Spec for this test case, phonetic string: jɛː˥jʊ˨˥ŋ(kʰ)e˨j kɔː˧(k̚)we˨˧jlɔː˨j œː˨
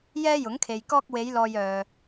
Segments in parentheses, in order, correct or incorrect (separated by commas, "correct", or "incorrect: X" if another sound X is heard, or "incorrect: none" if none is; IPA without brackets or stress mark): correct, correct